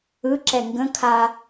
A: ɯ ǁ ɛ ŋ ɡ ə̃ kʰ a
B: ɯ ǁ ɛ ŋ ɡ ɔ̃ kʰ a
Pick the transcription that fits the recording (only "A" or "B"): A